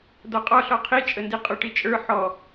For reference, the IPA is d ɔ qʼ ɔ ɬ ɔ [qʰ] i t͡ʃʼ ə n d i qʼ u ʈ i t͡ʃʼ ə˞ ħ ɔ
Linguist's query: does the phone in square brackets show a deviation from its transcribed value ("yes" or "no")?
no